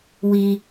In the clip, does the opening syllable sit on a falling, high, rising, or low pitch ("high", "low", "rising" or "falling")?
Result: high